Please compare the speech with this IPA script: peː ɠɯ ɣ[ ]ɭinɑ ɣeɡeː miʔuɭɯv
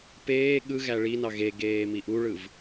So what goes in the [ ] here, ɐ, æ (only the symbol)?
æ